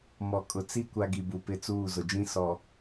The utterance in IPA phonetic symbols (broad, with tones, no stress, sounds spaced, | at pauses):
m ɔ˨ kʼ ʊ˨ t͡s i˦ kʷ a˦ ɡ i˨ b u˨ p ɪ˦ t͡s uː˦˨ z ʊ˨ d͡ʒ ĩ˦ s ɔ˨